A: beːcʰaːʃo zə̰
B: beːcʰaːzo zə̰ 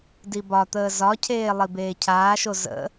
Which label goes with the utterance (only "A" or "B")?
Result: A